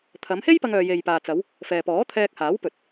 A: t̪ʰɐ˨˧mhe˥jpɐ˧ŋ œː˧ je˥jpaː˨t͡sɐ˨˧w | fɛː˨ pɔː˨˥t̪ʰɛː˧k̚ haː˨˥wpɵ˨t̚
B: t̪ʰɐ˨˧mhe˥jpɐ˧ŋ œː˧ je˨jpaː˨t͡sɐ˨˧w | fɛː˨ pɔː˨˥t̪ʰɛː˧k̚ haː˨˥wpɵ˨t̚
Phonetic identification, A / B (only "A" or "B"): B